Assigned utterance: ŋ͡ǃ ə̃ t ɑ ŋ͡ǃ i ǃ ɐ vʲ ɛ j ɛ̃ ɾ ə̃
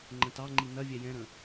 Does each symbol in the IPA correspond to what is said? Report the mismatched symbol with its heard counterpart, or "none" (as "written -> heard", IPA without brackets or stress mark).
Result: ǃ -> n